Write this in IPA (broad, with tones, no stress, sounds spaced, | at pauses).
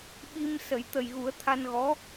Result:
ɓ i˧ m s ə˨˩˦ j t̪ ə˨˩ j ɣ u˨˩˦ ə̯ t̪ʰ a˧ n ɣ ɔ˧˥